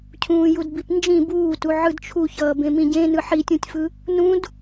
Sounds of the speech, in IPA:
cʰũːjudbipnd͡ʒĩ buːtu ʕɯdt͡ʃʰuçʌː bẽmĩɟẽ nɯħitʲũtʲfɯ | nũd

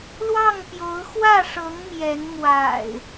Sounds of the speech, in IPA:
lwɑ˥˨ŋpjo˨˦ʊ̯ xwä˥˨ʂɤ˨˦ŋ mjɛ˨˦n mwa̰˨˩ɪ̯

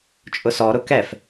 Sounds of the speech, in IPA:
t͡ʃʼʊsɔɾʊ kɛf

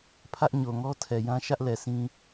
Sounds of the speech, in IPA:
pʰä˦ʔɲo˨ŋɔ˦ tʰɛ˨jã˦ ʃä˦ʔlɛ˨ sĩ˦

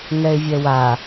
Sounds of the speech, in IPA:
ŋɛɪ̯vʲɛwa

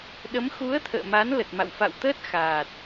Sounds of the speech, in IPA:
ɗə˨˦m xu˨˦ə̯ t̪ʰə̰ː˧˨ma˨˦n lə˨˩t̚ma̰˧˨w fa̰˧˨wt̪əː˦˥t̚ xaː˨˩t̚

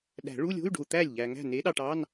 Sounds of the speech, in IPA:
ɗæ̤˨˩˦ɭu˧˥˧lʲo̤˧˥˧y̯ɖo̤˨u̯ t̪æ˥˩lʲʎæ˨ ŋæ̤˥˩ne˨˥ɗɑ˨ʈɑ˧˥˧n

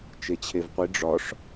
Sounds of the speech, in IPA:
t͡ʃet͡ɕʰevqʷi ɖ͡ʐɒʂ

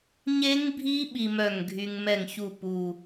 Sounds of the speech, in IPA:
ɲe˦˥ŋbʱi˦˥ ɓi˧mœ˧˩ŋ ɡʱy˧ŋ mɛ˧˩ŋçu˧˩ pu˧˩

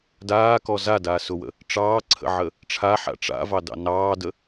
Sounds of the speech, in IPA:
daːkɔ zadaːsʊwə̰ | ʈ͡ʂɑːǀʰə̰ʕə | ʈ͡ʂʰaħa̰ ʈ͡ʂa̰vɑdɑ̰ nɑːdə

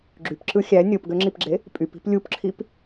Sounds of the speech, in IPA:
ɡ͡ǁypǁɯ xʲæ nʲopɡøŋ͡ǁipɡ͡ǁe | pʼypi̤p lʲupǁʰip

